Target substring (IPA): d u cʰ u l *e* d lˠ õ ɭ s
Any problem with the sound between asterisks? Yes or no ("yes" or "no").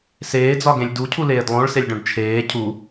yes